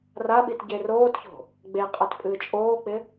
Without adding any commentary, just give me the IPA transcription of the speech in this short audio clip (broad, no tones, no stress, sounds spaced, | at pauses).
r a ɓ i t ɟ e r oː t ç o̤ | ɡ͡b e qʼ a t pʼ ɨː t͡ʃʼ oː k͡p ɪ